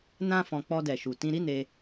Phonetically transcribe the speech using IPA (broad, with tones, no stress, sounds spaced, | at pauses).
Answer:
n ã˦ f ɔ̃˧ k͡p ɔ˧ d ɛ˨ ʃ u˨ t ĩ˧ ɾ i˦ n e˧